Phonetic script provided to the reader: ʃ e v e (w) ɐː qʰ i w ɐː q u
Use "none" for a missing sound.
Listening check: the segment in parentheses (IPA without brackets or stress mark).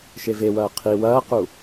w